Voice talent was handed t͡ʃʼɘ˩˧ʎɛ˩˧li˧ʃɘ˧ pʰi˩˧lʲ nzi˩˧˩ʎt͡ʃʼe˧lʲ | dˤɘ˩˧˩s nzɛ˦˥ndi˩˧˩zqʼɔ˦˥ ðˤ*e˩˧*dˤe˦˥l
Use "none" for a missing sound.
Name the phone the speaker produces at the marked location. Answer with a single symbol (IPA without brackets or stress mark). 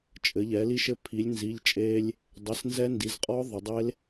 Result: ɘ˩˧